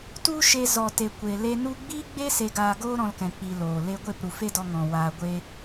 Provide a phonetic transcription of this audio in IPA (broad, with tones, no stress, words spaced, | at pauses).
tu˦ʃe˧ zɔ˨te˨kʷe˨le˧ nu˧ɡ͡biː˦ɡ͡be˦ se˧ɡaː˧ɡoː˦ ɾɔ̃˧lkɛ̃˨k͡pi˨ loː˨le˧ ɡʷe˦˨pɾu˨fe˦dɔ˧ ŋɔ̃˨ waː˨ɡʷe˧